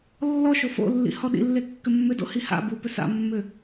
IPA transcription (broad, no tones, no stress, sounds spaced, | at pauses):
lː ɔ ʃ o f o̰ lː ḭ h ɔ ɗ ḭ lː e kː ʏ mː ʏ d o̰ h i h a̰ b u p ʏ s a̰ mː ʏ